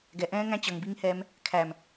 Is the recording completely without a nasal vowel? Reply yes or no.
no